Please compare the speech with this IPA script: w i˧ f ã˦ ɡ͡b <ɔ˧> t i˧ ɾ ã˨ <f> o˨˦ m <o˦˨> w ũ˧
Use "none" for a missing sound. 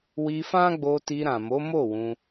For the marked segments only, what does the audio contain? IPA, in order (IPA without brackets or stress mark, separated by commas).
o˧, m, o˦˨